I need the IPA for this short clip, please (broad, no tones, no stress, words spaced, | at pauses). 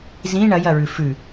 zĩ ɳɐjɐɹʉ fʉ